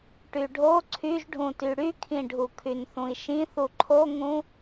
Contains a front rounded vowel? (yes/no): yes